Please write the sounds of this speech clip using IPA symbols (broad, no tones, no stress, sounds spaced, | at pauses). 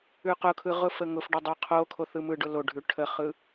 ʉ q ʊ kʰ ɯ ʁ ʊ f ə ŋ ʊ f ɖ ə dˤ ʉ qʰ o kʰ o θ ɯ m ɯ ɖ ʊ l o ɖʱ ʉ ʈʰ ə χ ɯ